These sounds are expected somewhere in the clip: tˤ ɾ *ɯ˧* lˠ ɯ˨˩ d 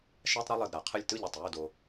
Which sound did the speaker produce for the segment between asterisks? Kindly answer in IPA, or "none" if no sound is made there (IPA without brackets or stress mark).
ɯ˧